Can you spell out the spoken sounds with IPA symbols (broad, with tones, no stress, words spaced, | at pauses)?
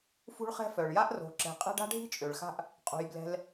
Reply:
fṳ˦ɭχɛ̤˦fœ˩ɭja˥ʔ ro̤˨ǁɛ̤˨qʼɛ̤˥ɖ a̤˥ɖʱi̤˥t͡ʃʼø˩ɭxa̤˦ʔ | qʼṳ˩jblɛ̤˨l